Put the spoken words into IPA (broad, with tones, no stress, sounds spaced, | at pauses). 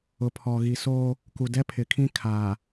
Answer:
ʊ˨ pʰ ɔ˨ ɣ i˨ s oː˦ | k u˨ d ɛ˦ pʰ ɪ˨ kʰ ĩ˦ kʰ aː˨